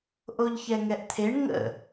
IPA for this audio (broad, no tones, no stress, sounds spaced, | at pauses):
ʔ o ʎ ç ɛ ŋ ɛ ʔ t̪ʰ e ɳ ŋ ə̰